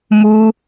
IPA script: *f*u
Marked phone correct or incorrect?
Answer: incorrect